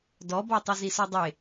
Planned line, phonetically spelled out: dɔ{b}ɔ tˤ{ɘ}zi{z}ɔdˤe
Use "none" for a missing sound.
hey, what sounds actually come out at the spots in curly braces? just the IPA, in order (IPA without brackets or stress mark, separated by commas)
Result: b, ɛ, s